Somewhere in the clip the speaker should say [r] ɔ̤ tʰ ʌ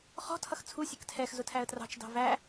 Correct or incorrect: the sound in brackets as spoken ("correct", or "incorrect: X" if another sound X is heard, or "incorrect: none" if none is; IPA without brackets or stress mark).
incorrect: χ